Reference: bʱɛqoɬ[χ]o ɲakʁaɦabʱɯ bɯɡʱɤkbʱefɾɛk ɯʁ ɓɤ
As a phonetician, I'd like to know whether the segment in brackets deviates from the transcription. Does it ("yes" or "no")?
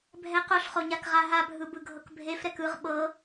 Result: no